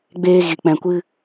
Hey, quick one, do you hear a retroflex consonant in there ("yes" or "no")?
no